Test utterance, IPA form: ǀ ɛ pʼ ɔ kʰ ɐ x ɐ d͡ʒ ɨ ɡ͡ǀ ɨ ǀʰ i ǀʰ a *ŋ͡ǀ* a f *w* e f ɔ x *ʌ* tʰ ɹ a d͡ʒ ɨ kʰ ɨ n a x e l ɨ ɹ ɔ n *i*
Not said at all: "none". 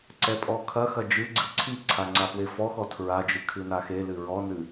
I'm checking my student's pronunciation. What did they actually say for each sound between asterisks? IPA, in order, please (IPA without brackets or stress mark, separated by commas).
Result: ŋ͡ǀ, w, ɔ, ɨ